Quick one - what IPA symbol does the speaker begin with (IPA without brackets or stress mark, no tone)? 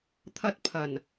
t̪ʰ